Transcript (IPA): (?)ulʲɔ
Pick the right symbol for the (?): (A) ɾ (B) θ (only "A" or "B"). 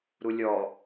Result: A